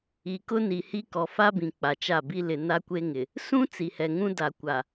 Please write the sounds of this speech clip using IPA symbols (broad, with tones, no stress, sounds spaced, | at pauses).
i˨ k ʊ˦ n i˨ h i˦ k ɔ˨ f a˦ b ĩ˨ k͡p a˨ t͡ʃ a˦˨ b i˦ l ɪ˨ n a˦ kʷ e˦ ŋ ɪ˨ | s ũ˦ t͡s i˨ h ɛ˨ ŋ ũ˦ d a˨ kʷ a˨